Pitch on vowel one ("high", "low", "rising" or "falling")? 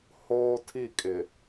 high